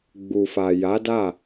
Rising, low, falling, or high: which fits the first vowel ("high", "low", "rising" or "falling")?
low